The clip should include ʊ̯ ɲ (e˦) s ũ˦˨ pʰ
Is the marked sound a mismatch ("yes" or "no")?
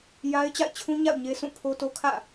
no